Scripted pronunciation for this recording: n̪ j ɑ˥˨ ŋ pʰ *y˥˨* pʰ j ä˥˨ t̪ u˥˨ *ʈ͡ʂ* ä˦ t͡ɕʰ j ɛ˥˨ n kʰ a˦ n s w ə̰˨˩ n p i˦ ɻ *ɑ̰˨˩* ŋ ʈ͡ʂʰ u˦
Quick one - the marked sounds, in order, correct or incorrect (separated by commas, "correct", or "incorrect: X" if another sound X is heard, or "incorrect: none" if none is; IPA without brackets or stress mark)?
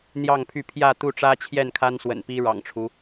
correct, correct, correct